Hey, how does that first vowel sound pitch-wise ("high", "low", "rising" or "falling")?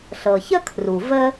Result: low